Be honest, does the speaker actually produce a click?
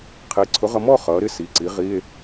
yes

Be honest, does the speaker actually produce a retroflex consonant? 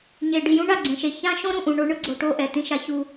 yes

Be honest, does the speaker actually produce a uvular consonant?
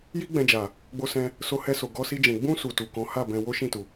no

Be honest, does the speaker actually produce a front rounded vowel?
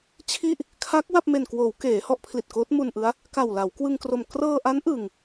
no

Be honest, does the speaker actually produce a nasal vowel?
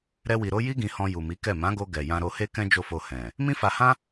yes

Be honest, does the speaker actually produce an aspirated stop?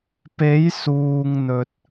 no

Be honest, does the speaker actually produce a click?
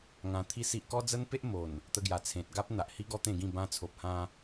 no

